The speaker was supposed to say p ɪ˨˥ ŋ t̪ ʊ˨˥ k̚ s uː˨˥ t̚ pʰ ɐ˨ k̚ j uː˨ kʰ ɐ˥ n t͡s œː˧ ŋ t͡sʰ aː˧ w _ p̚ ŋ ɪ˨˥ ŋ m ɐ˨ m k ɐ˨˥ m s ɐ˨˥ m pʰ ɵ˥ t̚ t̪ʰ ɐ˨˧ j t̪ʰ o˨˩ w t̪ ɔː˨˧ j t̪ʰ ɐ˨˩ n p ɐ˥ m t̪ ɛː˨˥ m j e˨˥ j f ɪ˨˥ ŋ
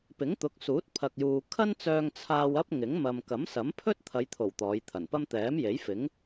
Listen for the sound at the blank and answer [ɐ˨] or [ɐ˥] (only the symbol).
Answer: ɐ˥